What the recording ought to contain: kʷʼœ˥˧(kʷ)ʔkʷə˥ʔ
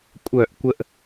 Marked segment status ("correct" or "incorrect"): incorrect